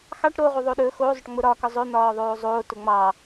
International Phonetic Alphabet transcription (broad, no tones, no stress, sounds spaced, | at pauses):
x ɑ ʈ ɾ o ʁ u ðˤ o ɗ ɵ x o zˤ ʊ ʈ ŋ͡m ʊ ɾ ɒ k ɒ zˤ ɵ n̪ ɒː ðˤ oː zˤ oː t ʊ ŋ͡m ɑː